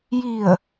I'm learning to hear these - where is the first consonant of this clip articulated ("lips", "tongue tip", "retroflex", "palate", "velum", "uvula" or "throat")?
palate